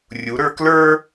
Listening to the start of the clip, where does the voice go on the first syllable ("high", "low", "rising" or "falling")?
rising